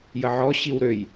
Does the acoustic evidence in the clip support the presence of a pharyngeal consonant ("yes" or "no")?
yes